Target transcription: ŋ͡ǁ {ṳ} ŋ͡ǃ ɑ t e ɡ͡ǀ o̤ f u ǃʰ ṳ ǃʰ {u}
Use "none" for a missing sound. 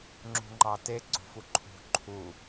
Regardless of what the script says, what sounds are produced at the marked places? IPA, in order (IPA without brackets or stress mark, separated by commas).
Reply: ṳ, u